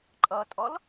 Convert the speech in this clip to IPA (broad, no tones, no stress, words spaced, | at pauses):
ǃʼʌtʼɔl